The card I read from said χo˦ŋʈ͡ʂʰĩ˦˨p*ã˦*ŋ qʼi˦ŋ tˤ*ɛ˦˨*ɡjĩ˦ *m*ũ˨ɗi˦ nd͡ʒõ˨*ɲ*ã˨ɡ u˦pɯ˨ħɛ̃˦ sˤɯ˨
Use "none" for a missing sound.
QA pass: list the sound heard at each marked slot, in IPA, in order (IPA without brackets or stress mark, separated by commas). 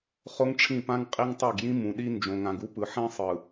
ã˦, ɛ˦˨, m, ŋ